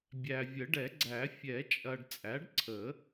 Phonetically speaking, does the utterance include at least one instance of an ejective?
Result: yes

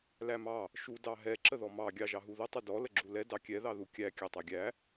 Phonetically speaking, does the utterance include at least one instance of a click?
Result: yes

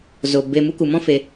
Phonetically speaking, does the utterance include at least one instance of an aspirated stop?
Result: no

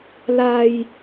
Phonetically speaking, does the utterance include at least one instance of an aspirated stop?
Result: no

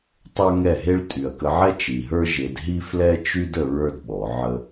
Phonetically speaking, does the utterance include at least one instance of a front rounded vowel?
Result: yes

